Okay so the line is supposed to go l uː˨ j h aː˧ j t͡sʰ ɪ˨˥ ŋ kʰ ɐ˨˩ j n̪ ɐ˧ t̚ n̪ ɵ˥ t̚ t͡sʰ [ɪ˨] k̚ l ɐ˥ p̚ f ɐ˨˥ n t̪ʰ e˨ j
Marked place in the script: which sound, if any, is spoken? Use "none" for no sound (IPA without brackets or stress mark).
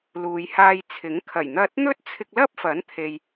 ɪ˧